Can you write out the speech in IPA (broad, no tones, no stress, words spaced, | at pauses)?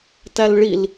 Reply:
tælɭil